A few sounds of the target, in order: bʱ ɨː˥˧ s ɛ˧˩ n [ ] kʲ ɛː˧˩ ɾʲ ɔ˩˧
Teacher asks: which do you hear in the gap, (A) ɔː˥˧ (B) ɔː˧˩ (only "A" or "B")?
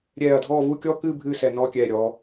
A